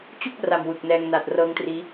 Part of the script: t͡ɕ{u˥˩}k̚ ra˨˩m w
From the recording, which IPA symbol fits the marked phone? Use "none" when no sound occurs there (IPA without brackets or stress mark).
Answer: u˥˩